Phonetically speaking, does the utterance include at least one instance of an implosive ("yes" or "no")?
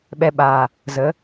yes